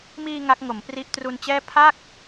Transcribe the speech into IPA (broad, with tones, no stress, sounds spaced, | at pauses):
m iː˧ ŋ a˦˥ k̚ ŋ o˩˦ m p r i˦˥ ʔ t r u˧ n t͡ɕ ɛː˥˩ pʰ a˥˩ k̚